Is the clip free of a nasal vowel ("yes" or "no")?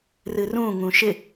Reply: no